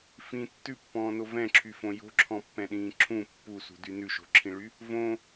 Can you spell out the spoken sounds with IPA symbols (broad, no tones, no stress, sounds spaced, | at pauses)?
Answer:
f ĩ tː ʉ pː ɔ̃ː n o v ɛ̃ ǁʰ y f õ j o̤ ǁʰ ɔ̃ pː ɛ̃ ɗ ĩː ǁʰ ũ pː u s ṳ d y n ʉ ʃ o̤ ǁʰ ĩ ɭ y | v õ